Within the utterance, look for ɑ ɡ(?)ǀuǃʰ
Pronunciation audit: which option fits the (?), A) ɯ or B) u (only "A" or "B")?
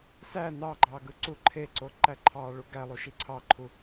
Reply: A